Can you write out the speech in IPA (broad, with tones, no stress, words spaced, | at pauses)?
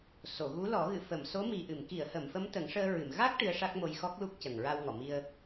so˨˩˨ɣu˧˥lɔ˨˩˦ ɣɨ˨˩˨fə˨˩˨mso˧˥ mi˨˩ʔɨ˨˩˨mki˨˩˨ə̯hə˨˩˨m fə˧˥mt̪ə˨˩˦ŋʂəː˧ɹɨ˨˩˨m ɣa˦˥k̚ ʈɨ˧˥ə̯ʂa˦˥k̚mo˧j xɔ˦˥k̚lu˦˥k̚ cə˨˩ŋɹa˧wŋɔ˨˩˨mi˧ə̯